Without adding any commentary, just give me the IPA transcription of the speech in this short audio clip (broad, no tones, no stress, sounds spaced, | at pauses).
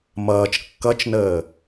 m ʌː t͡ʃ kː ʌ t͡ʃ n əː